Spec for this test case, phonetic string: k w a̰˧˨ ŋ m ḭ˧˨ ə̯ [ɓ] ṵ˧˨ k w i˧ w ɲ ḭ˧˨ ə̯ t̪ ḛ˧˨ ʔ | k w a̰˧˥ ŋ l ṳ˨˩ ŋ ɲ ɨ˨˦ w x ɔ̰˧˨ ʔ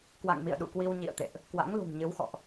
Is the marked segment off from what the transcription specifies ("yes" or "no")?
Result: yes